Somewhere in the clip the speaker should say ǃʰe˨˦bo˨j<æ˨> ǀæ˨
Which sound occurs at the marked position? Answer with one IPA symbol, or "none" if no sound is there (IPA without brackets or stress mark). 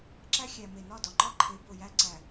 æ˦